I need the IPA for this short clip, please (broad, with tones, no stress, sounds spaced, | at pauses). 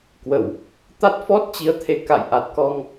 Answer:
k w ə˧˩˨ w | t̪ a˦˥ t̚ f ɔ˦˥ t̚ t͡ɕ i˨˦ ə̯ t̪ʰ e˨˦ k a̰˧˨ j ʔ a˨˩ t̚ k ɔ˧ ŋ